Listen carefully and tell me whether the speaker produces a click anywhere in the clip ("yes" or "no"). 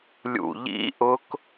no